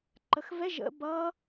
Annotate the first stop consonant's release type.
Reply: click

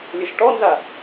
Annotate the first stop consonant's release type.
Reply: plain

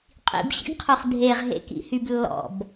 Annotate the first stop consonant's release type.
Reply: ejective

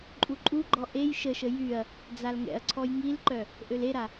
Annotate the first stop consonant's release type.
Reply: click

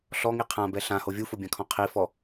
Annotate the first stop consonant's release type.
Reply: aspirated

